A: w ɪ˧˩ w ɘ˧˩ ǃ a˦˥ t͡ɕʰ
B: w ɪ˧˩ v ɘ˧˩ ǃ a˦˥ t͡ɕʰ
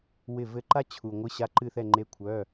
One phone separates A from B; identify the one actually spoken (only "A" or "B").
B